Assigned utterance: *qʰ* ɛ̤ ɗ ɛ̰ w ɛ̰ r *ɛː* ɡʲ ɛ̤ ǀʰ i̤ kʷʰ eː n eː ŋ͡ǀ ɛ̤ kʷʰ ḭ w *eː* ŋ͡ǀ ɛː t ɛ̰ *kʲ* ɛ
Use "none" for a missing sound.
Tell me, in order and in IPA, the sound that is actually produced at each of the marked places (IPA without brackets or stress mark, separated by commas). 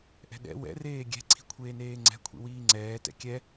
ʔ, eː, iː, kʲ